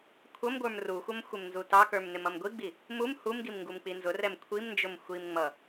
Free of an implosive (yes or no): yes